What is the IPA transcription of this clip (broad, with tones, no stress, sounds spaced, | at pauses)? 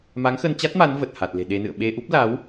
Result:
m a˨˦ ŋ x ə˧ n t͡ɕ a˦˥ t̚ m a˨˦ n v ə˨˩ t̚ h a˨˩ t̚ l e̤˨˩ ɗ e˧ n ɨ̰˧˨ ə̯ ɓ e˧ ʔ u˦˥ p̚ l a˨˦ w